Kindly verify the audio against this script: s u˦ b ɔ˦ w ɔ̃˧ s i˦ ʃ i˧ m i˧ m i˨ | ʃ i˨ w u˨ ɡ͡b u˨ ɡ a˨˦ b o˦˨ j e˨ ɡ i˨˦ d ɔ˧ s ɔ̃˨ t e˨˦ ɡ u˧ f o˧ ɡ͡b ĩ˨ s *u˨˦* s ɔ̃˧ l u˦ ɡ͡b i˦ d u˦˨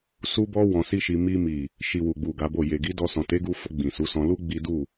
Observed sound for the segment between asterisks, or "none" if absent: u˨˦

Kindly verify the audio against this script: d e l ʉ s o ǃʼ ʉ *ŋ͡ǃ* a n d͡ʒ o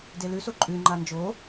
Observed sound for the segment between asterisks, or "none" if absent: ŋ͡ǃ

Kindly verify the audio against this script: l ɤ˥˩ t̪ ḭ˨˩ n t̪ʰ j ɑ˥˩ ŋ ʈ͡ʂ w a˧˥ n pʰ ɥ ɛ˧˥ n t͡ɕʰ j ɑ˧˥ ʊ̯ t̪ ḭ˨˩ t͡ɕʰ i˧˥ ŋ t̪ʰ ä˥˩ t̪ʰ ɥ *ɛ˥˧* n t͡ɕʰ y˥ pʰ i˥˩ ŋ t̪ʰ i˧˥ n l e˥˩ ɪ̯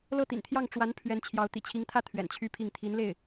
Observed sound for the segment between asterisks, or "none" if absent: ɛ̰˨˩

